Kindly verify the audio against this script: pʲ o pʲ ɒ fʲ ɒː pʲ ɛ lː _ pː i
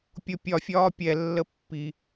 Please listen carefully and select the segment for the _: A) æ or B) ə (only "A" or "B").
B